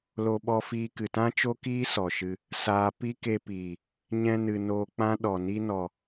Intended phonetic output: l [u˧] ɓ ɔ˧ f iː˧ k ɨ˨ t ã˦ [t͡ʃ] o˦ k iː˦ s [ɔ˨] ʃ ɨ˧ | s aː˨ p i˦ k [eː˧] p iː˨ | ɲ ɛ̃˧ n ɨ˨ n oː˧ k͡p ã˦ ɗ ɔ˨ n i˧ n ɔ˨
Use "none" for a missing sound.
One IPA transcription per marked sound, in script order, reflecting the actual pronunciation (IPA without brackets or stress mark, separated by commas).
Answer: o˧, t͡ʃ, ɔ˨, e˧